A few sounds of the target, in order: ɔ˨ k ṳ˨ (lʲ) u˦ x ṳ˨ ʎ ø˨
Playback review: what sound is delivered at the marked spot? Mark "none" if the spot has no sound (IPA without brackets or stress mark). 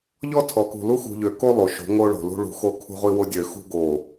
l